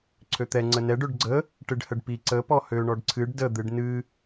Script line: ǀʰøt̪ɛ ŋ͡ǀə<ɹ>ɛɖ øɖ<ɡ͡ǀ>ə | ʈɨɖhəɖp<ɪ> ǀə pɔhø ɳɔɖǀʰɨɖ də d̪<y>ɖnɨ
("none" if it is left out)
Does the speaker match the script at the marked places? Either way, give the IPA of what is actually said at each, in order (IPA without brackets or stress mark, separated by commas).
n, ɡ͡ǀ, i, ɨ